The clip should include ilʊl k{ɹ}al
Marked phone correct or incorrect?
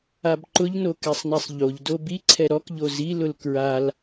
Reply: correct